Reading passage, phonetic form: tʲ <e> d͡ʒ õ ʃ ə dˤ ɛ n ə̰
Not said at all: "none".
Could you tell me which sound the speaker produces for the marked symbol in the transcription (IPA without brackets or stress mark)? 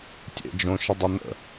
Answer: ḛ